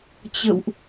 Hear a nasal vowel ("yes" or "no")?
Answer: no